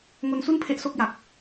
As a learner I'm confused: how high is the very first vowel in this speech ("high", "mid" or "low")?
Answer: mid